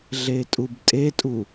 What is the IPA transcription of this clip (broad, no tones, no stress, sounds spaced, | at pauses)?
ɮ e tʼ u b tʼ e tʼ u